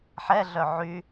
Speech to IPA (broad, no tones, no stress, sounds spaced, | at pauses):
ħ ɛ ɮ œ ʕ y